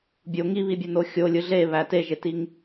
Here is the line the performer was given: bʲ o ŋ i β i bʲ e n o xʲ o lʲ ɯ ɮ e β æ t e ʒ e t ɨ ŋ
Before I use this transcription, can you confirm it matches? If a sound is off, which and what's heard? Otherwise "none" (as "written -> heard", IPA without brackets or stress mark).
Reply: ɨ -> i